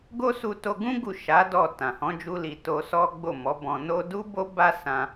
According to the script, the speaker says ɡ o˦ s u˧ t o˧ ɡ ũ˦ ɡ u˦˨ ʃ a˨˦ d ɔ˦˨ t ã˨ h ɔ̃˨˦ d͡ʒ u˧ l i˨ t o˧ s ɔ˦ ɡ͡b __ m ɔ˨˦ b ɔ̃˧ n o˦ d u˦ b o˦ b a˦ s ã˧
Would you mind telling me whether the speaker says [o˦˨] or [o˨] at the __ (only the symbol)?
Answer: o˦˨